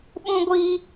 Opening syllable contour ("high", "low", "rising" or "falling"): high